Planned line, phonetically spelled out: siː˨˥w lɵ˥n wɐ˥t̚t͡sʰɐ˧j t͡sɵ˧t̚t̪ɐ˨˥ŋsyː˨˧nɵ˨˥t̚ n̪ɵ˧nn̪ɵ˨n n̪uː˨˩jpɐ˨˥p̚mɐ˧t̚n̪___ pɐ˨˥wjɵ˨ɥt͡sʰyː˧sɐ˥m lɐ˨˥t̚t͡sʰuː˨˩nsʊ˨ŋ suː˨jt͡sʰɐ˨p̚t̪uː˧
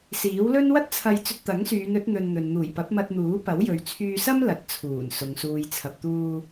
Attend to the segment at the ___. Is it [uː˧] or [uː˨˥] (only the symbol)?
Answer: uː˨˥